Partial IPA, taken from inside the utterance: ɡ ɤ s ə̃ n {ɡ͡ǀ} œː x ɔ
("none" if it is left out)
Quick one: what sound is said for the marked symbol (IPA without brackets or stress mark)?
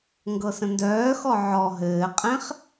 d